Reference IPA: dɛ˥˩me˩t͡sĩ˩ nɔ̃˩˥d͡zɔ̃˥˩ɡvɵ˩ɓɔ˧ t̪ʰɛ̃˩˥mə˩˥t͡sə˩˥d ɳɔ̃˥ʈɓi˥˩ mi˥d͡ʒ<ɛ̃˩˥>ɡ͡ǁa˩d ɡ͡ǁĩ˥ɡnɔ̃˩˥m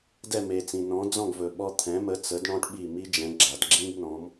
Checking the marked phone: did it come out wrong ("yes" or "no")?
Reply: no